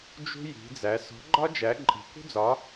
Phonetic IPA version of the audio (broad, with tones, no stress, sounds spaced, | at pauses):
d͡ʒ ṳ˥ j i̤˧˥ d͡z æ˧˥ s ɔ̤˧˥ ɡ͡ǃ ɒ˥ d͡ʒ æ˧˥ ǃʼ i̤˧˥ k ṳ˥ d͡z ɒ˧˥